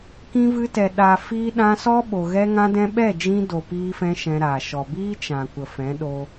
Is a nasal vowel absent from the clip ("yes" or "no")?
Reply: no